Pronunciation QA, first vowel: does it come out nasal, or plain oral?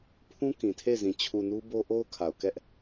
nasal